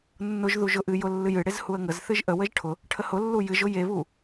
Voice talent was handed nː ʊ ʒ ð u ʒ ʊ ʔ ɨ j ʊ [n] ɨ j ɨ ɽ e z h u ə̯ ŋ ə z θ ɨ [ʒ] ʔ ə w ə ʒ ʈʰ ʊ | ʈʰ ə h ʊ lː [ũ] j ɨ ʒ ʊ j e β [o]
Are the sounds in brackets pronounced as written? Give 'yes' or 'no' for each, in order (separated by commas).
no, yes, no, no